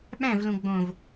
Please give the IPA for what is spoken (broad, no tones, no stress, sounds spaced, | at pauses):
ɓ æ̃ v l ũ ɡ͡b õ v